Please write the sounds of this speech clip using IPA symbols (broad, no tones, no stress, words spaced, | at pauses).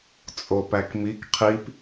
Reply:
t͡sʼopækmik qʰip